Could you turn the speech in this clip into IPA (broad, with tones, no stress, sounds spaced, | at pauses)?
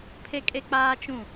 pʰ e˦ kʼ e˦ k͡p aː˦ t͡ʃ ũ˦˨